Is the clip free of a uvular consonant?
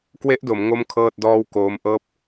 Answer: yes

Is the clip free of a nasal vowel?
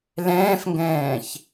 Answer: no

